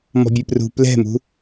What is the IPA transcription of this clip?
m ɔ̤ bʲ e p r ṳ p l ɛ̤ m ṳ

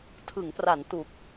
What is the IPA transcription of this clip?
tʰ ɯ˩˦ ŋ p r a˩˦ n t u˨˩ k̚

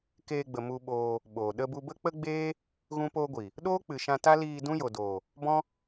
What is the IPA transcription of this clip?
k eː˧ ɡ͡b ə˨ m u˧ ɓ oː˧ | ɓ oː˨ ɗ ə˧ b u˧ b ə˦ k͡p ə˦ ɡ͡b eː˦ | ɣ ũ˦ p oː˦ ɡʷ i˨ | ɗ oː˦ k͡p ɨ˨ ʃ ã˧ t a˦ l iː˧ d ũ˦ j o˨ d oː˨ | b ɔ̃˦

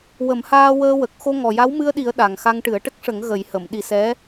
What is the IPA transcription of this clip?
w ə˨˩˦ m h aː˧ w əː˧ w ə˨˩ k̚ x o˧ ŋ ɔ˨˩ j a˧˥ w m ɨ˧ ə̯ ɗ i˨˩˦ ə̯ ɗ a˨˩ ŋ x a˧ ŋ ʈ ɨ˨˩˦ ə̯ ʈ ə˦˥ k̚ ʂ ə˨˩˦ ŋ ɣ ə˨˩˦ j h ə˨˩˨ m ɗ i˨˩˦ s ɛ˧˥

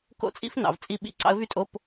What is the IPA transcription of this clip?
k o̰˥˨ t͡sʼ ḭ˥ f n ɑ̰˩˧ v t͡sʼ i˥˨ ɓ ḭ˧˥˧ ǀ ɑ̰˧˥ ə̯ v y˥ tʼ o˧˥˧ p

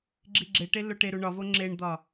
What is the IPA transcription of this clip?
ɡ͡ǁ i ɡ͡ǁ e ʈ e lː o ʈ e ɾ u ɳ ɒ v o ŋ͡ǁ e ɳ d̪ ɒ

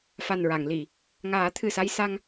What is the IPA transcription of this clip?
f a˨˩ n ɹ a˨˩˨ ŋ l i˨˩˨ | ŋ aː˨˩˦ t̪ʰ ɨ˨˩ s a˧ j s a˧ ŋ

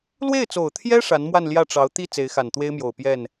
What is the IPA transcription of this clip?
l w e˥˩ ɪ̯ t͡s o˨˩ ʊ̯ t̪ʰ j ɛ˥ ʂ a˧˥ n m w a˥˧ n l j ä˥˩ ʈ͡ʂ ɑ˧˥ ʊ̯ t̪ i˥˩ t͡s e˧˥ ɪ̯ x a˨˩ n t̪ w e˥ ɪ̯ m j o˨˩ ʊ̯ p j ɛ˥˩ n

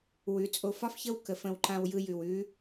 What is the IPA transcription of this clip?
w ʉ˩˧ t͡sʼ o˧ f ɒ˥ f ç ə˥ w k ə˩˧ f ə̃˧ w ǃ ã˧ w j ɯ˧ j ʉ˩ w ʉ˧˥

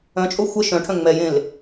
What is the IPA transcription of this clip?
œ̃ t͡ʃʼ o xʷ ə ʃ œ̃ ʈʰ œ̃ ŋ͡m ɛ j ẽ l

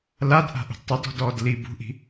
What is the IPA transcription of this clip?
l a d ʔ a̤ ʔ ṳ d tˤ ɨ d ɔ̤ d ɔː d l i b ṳ ʔ i̤

